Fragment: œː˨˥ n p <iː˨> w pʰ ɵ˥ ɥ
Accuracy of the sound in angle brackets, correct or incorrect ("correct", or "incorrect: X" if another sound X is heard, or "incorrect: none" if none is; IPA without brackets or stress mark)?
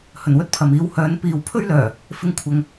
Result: correct